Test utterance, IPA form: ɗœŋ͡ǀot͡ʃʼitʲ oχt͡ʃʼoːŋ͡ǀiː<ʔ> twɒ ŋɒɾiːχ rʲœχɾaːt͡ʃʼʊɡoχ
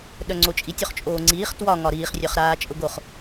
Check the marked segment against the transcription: incorrect: χ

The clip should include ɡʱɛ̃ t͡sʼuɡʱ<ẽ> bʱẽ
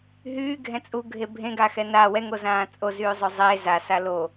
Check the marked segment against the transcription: incorrect: e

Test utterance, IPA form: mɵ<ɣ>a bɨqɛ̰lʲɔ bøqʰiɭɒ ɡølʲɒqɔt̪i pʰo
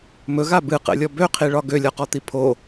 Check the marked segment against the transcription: correct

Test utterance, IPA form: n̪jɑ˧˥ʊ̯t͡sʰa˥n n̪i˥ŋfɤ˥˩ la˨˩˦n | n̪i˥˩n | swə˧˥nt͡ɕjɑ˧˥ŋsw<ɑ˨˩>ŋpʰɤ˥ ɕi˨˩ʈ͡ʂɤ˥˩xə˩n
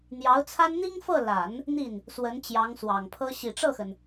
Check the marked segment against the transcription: correct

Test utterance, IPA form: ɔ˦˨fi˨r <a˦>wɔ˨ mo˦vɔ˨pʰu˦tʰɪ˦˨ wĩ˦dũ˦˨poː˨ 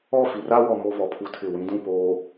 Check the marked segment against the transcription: correct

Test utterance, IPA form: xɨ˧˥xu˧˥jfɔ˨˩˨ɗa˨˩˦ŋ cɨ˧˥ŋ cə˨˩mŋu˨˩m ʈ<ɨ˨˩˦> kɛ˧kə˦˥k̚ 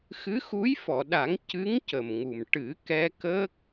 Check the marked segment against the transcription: correct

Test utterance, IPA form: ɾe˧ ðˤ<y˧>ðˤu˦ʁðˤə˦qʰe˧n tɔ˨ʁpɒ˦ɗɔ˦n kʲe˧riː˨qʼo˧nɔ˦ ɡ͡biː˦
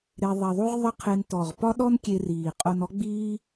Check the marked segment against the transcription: incorrect: e˧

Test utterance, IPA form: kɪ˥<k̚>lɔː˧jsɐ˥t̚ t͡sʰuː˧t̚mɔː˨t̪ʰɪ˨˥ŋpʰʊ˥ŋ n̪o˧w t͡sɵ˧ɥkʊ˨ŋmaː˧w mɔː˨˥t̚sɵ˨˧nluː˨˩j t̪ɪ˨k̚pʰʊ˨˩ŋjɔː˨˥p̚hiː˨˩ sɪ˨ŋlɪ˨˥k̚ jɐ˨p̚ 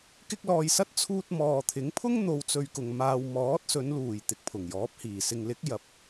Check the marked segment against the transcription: correct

